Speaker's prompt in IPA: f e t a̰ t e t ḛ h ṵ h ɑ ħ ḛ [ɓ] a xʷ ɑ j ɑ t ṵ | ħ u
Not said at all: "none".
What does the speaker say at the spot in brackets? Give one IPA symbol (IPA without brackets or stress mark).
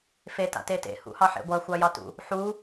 ɡʷ